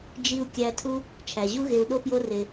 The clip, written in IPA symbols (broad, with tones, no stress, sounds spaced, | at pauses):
d͡ʒ i˧ u̯ kʲ æ˧ tʰ u˦ | t͡ʃʰ æ˨ ʑ u˦ ɣ e˧ u̯ ɗ o˦ p j o˦ r e˧